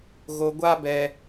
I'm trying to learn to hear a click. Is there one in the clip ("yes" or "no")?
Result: no